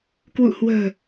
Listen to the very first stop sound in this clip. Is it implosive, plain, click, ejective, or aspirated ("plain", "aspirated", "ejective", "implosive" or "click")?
plain